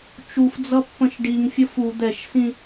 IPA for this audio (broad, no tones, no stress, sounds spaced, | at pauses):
t͡ʃ u f d͡z ʌ pː ə̃ ʃ ɖ i ŋ fʲ ʌ f u d̪ ɛ ʃ s ĩ